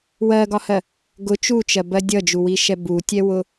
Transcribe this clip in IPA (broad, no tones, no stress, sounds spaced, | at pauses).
w ɜ ɡ ɒ h ɜ | ɡ ʊ t͡ʃ u t͡ʃ ɜ b ɜ dʲ ʌ d͡ʒ u w i ʃ ɛ b u tʲ ɛ w ʊ